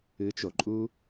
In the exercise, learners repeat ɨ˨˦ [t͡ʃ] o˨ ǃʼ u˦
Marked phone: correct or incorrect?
correct